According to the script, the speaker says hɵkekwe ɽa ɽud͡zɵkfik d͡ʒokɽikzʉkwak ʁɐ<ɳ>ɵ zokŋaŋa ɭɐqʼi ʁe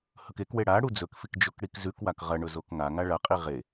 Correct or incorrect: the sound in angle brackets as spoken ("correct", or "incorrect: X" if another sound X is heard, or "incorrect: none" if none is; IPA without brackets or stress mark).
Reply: correct